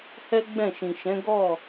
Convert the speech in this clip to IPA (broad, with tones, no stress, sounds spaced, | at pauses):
h ɛ˦ ɡ͡b ɛ̃˦˨ ʃ ĩ˨ ʃ ɛ̃˨˦ ɡ ɔ˦˨